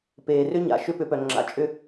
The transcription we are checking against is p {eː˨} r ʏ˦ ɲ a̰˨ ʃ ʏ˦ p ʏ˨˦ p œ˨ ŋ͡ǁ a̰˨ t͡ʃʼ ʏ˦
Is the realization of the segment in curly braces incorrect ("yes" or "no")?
no